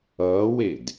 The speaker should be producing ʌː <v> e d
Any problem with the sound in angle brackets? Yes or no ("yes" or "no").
yes